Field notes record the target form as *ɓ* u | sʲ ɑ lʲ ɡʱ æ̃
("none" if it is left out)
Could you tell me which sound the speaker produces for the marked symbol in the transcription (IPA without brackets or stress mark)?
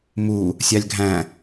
m